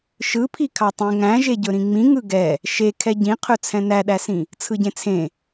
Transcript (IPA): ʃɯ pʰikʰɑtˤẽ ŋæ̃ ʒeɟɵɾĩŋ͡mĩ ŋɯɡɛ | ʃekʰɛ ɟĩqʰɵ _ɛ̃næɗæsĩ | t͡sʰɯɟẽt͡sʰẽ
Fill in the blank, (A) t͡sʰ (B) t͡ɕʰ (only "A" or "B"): A